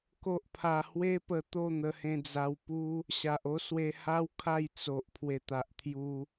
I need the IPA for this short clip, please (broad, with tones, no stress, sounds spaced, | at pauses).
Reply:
k o˦ ʔ pʰ a˧ h w e˦ p ə˧ t̪ o˥˧ n̪ ə˧ h ẽ˧ d͡z a˧ w p u˦ | ɕ a˨ ʔ o˦ s w e˧ h a˦ w kʰ a˥˧ j t͡s o˨ ʔ pʰ w e˨˩ t̪ a˨ ʔ t̪ʰ j u˧